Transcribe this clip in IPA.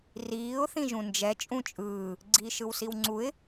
r iː ʊ̯ θ ĩ ʒ ũ n d͡ʒ ɛ t͡ʃʼ ũ t͡ʃʼ ɯː | ɡ͡ǀ iː ʃ ɯ w s i w ŋ͡ǀ u ɪ̯

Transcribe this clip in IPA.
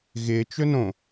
ɣ ɪ t͡ʃ ɵ n õ

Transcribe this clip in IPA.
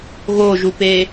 ɣ o ʒ u p e

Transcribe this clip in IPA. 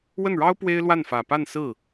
w ə˥˩ n ɻ ɑ˥ ʊ̯ p w e˥ ɪ̯ l w a˥˩ n f ä˨˩ p a˥˧ n s ɹ̩˥˩

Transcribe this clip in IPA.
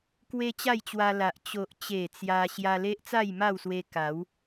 k w e˧ t͡ɕ a˥˧ j t͡ɕ w a˧ l a˨ ʔ t͡ɕ o˨ ʔ t͡ɕ e˨˩ t͡s j a˧ ɕ j a˧ l e˦ ʔ t͡s a˥˧ j m a˥˧ w s w e˧ k a˨˦ w

